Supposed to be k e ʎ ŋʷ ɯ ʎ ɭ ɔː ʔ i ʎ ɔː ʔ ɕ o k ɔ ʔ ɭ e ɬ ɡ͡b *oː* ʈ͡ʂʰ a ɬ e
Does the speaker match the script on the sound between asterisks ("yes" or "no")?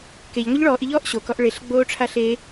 yes